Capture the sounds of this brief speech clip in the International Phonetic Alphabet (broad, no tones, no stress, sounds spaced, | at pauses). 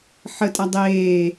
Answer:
ħ ə tʼ a dˤ eː